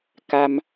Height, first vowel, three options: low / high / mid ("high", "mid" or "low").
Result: low